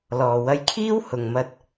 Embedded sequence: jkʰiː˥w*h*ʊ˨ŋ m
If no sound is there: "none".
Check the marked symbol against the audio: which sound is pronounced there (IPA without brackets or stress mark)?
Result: h